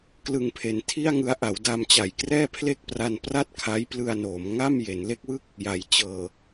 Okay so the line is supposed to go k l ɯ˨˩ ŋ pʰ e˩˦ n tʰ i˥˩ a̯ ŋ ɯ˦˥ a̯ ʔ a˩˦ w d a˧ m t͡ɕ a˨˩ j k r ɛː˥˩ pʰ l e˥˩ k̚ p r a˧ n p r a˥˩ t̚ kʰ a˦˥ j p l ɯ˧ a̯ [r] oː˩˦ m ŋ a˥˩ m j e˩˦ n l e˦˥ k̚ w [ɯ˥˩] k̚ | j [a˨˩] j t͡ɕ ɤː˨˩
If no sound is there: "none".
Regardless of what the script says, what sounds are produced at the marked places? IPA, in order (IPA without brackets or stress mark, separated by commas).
n, ɯ˥˩, a˩˦